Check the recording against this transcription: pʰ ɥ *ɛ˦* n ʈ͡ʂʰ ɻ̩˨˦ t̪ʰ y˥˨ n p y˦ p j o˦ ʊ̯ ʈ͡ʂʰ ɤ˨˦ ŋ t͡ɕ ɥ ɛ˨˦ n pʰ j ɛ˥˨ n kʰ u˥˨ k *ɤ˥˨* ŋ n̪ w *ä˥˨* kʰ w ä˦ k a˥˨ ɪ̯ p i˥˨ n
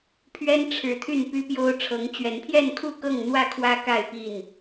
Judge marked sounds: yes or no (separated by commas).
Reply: yes, yes, yes